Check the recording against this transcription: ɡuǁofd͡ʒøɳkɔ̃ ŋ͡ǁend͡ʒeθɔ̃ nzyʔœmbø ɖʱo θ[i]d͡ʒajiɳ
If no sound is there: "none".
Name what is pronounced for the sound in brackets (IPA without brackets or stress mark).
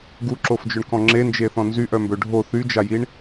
y